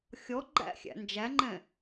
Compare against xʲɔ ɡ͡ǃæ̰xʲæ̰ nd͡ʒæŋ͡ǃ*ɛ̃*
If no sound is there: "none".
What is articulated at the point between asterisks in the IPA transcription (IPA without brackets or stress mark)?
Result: ɛ̃